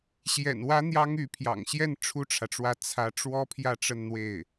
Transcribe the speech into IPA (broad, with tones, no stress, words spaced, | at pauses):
ɕjɛ̰˨˩nwä˧˥ n̪jɑ˥ŋy˧˥ pʰjɑ̰˨˩ŋɕjɛ˥˩n ʈ͡ʂʰu˥ʈ͡ʂʰä˨ʈ͡ʂwä˥˩ t͡sʰä˧˥ ʈ͡ʂwɔ˥pʰjä˥˧ ʈ͡ʂə˥˧nn̪we˥˩ɪ̯